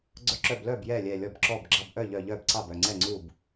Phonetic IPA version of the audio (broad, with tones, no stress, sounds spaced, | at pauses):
ɡ͡ǀ œ˧˩ ǁ œ˧˩ b l œ˥˩ b j ɛ˥˩ lʲ ɛ˧˩ lʲ ɔ˧˩ b ǁ ɔ˧˩ b ɡ͡ǁ ɑ˧˩ b ʔ œ˥˩ ʎ œ˧˩ ʎ œ˥˩ b ǀ ɑ˥˩ b œ˥˩ ŋ͡ǀ ɛ˥˩ ŋ͡ǀ u˥˩ b